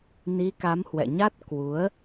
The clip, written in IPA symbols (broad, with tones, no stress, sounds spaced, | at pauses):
n i˨˦ k a˨˦ m h w ɛ̰˧˨ ɲ a˦˥ t̚ k w u˨˦ ə̯